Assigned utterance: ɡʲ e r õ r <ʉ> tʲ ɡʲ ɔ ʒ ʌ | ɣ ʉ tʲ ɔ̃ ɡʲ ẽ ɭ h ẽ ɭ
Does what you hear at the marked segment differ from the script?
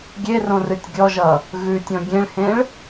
yes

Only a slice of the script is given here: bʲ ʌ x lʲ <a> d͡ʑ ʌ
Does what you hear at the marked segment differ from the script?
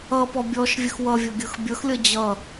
yes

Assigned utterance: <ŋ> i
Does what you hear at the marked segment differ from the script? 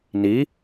yes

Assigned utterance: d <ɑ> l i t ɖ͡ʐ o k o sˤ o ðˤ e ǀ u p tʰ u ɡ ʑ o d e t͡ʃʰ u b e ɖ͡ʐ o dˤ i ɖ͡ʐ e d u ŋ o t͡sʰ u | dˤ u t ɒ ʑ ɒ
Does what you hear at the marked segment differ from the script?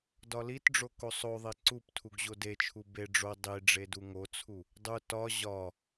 yes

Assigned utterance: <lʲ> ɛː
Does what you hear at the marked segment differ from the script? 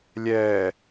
no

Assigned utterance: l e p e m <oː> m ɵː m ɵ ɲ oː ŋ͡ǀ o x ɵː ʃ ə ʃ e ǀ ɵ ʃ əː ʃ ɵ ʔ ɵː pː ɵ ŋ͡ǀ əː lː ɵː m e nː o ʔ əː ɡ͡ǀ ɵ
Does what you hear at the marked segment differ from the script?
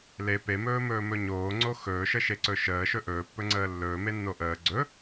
yes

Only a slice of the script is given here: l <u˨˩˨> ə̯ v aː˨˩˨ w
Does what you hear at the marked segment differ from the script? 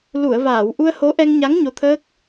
no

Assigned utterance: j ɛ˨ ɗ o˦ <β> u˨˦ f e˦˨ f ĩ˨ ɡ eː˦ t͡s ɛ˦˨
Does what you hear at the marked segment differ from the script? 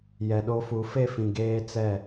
yes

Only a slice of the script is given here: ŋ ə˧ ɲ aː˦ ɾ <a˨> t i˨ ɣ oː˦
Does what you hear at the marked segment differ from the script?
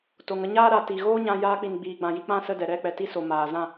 no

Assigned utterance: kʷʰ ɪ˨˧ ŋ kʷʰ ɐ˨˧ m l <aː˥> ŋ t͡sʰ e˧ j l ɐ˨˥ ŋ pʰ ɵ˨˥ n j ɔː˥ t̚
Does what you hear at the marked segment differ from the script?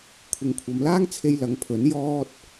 no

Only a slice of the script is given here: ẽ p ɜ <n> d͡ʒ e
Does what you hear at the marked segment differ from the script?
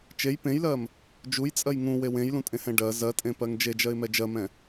yes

